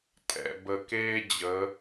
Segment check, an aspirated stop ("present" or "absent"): absent